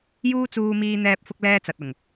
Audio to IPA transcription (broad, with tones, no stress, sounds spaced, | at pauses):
j uː˥ t͡s uː˧ m iː˧ n̪ ɛː˧ p̚ f ʊ˥ k̚ l ɛː˥ t͡s ɐ˨ t̚ ʊ˨˩ ŋ